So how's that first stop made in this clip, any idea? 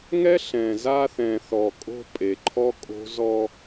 ejective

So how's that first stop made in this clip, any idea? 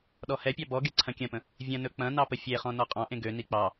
implosive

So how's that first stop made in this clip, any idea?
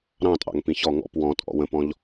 ejective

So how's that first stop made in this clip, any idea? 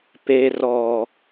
plain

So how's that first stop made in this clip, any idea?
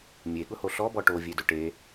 implosive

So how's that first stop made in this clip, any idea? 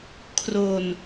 aspirated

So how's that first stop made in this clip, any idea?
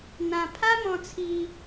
aspirated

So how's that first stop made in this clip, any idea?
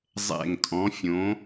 ejective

